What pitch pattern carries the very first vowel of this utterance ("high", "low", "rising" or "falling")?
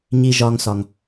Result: low